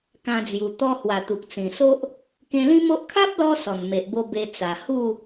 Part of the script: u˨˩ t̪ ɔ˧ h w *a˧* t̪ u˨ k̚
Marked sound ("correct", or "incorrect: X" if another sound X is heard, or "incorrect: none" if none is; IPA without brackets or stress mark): incorrect: a˨˩